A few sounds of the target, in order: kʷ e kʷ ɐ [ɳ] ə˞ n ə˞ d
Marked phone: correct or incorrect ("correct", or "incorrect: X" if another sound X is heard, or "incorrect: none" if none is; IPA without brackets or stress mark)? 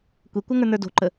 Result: incorrect: ŋ